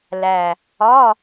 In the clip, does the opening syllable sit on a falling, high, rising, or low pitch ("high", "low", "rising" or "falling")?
low